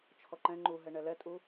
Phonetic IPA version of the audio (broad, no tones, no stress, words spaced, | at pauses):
t͡ʃʰɔǃɛ̃ ŋ͡ǃuɦɛ ɳɛlɛtʼu